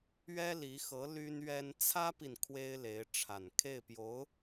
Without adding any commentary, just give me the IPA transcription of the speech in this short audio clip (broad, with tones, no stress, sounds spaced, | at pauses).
ɥ ɛ˥ l i˧˥ x ɤ˧˥ l y˥ n ɥ ɛ˥ n t͡sʰ ä˥ p i˨ n kʰ w e˥ ɪ̯ l e˧˥ ɪ̯ ʈ͡ʂʰ a˨˩ n kʰ e˥˩ ɪ̯ p j o˧˥ ʊ̯